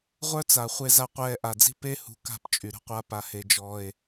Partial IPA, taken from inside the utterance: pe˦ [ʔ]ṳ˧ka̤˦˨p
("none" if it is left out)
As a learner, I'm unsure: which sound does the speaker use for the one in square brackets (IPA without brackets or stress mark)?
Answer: h